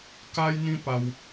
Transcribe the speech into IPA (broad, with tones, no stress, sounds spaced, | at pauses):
k a˦ j n̪ ĩ˦ p a˦ w